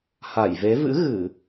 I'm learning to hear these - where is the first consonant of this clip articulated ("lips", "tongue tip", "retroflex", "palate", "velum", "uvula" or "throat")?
throat